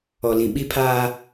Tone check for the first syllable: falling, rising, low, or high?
low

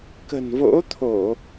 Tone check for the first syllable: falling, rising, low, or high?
low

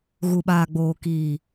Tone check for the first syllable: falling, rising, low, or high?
low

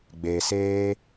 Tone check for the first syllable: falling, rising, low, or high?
low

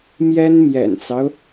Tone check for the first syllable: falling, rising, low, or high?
high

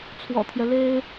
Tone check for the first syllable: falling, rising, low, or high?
low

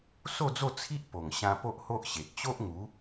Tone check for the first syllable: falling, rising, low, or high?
falling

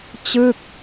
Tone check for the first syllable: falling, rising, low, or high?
falling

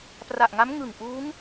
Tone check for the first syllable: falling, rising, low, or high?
low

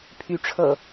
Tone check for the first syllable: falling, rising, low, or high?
rising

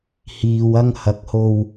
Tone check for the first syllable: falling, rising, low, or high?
low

